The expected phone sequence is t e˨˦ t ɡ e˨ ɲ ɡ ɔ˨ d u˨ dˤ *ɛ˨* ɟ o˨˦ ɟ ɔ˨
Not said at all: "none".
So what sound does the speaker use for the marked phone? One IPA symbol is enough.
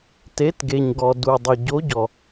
ə˨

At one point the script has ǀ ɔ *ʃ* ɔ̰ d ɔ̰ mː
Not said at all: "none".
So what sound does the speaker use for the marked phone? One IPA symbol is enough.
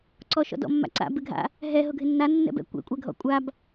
ʃ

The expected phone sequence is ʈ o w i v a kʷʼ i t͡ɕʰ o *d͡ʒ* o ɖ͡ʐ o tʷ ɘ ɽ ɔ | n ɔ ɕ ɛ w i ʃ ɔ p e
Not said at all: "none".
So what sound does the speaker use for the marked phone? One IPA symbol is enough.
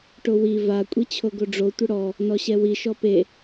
ɡ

